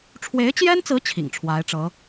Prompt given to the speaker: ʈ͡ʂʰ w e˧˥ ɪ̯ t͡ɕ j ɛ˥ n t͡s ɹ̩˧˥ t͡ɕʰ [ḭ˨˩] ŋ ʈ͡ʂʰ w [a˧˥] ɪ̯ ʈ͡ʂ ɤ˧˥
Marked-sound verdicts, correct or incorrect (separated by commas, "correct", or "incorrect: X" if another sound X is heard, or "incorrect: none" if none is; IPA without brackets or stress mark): correct, correct